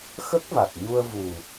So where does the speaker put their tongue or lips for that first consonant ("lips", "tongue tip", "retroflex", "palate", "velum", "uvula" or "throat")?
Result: velum